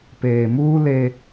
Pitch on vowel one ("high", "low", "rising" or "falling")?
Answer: low